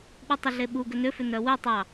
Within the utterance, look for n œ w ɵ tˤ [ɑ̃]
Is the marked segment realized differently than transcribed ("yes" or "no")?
yes